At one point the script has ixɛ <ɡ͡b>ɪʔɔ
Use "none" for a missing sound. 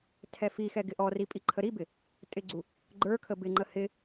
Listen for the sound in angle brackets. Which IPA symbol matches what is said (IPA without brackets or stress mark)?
ɡ